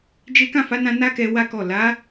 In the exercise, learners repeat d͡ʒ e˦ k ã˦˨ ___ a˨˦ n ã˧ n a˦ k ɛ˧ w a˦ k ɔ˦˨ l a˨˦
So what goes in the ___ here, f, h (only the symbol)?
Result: f